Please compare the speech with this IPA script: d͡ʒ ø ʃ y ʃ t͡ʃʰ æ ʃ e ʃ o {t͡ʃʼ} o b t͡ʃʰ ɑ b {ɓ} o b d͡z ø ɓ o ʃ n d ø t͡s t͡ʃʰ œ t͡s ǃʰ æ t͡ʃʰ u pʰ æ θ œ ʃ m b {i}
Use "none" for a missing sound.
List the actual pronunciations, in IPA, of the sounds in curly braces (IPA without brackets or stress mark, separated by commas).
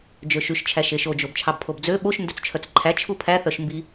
d͡ʒ, pʰ, i